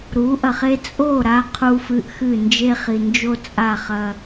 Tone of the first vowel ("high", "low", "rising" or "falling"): rising